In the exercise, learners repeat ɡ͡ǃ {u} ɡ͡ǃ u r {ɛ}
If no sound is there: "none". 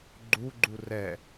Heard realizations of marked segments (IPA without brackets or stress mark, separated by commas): u, ɛ